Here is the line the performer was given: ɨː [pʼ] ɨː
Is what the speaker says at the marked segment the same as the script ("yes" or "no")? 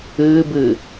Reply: no